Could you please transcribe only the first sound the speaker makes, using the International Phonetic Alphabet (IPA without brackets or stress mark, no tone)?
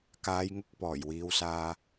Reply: k